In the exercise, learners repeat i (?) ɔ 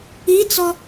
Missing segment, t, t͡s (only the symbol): t͡s